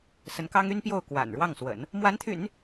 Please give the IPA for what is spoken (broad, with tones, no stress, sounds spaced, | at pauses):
s ə˧˥ n k ɑ˥ ŋ y˥ n p j o˥˩ ʊ̯ k w a̰˨˩ n ɻ w ɑ˥˩ ŋ s w ə̰˨˩˦ n | m w a˧˥ n t̪ʰ y̰˨˩˦ n